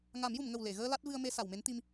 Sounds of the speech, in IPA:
ŋ a˨˩˦ m j u˨˩˨ m ŋ ə˨˩ w l e˨˩˨ ɣ əː˧ l a˦˥ t̚ v ɨ˧ ə̯ m e˧ s a˨˩˨ w m e˧˥ n t̪ i˧ m

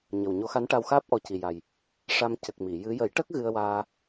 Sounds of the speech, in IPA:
ɲ ə˨˩ w ɲ o˧˥ x a˧˥ n ʈ a˧ w x aː˦˥ p̚ ʔ ɔ˧ c i˨˩ j a˨˩ j | ʂ a˧ m c ə˨˩ k̚ m i˨˩˨ j ɨ˧˥ j ə˨˩˦ j ʈ ə˦˥ k̚ ɣ ɨ˧ ə̯ w aː˧

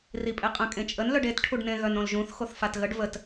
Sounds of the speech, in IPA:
r i pʼ e qʼ ə̃ kʼ ẽ t͡ʃʼ ə n l œ ɖ e t ʈʰ u ɖ n ẽ ɣ œ n õ l ʒ ũ θ x o θ f a t ɣ ə ɖ v ə t

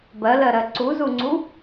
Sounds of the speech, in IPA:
b ɜ l ɜ ɾ ɜ ǀ u z u ŋ͡ǀ u

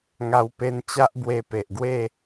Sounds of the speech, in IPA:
ŋ a˧ w p e˧ n t͡ɕ a˦ ʔ b w e˧ p e˨ ʔ ɡ w e˥˧

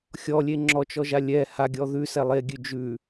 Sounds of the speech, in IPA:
xʲ ɔ lʲ e ŋ͡ǁ ɔ t͡ʃ ɔ ʒ a lʲ ɛ h a ɡʲ ɔ ð ʉ s ɛ lˠ e ɡʲ ʉ d͡ʒ ʉ

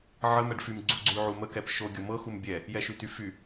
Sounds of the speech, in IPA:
ʕ ə m ɛ ɖ f y m ɡ͡ǀ u ɡ͡ǀ y ʕ u m ə k ɛ p ʃ o ɡʲ ɤ m ɤ x u m bʲ ɛ | j ɛ ʃ y t y f y

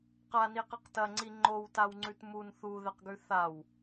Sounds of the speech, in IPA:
q a n i q ɨ q t ɐ ŋ͡ǀ i ŋ͡ǃ o w t a w ŋ͡ǀ ʉ t m u n θ u ð e q ɡ ʉ θ a w

